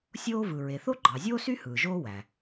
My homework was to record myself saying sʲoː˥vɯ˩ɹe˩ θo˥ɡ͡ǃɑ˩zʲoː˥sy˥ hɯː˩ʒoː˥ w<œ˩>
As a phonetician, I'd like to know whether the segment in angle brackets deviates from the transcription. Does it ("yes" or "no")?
yes